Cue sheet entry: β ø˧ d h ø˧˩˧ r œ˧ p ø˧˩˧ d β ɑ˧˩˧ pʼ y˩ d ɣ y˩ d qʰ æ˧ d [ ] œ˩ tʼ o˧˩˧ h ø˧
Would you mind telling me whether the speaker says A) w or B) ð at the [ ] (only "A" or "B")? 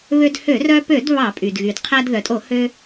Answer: B